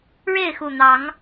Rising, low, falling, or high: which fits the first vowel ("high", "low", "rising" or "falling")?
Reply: falling